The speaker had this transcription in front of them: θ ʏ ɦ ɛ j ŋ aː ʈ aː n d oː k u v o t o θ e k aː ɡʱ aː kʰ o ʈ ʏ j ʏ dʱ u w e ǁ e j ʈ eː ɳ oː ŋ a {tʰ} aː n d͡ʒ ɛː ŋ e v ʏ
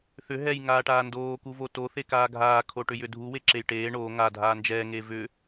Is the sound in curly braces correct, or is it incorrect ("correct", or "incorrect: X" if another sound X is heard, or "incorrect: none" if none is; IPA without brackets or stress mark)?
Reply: incorrect: dʱ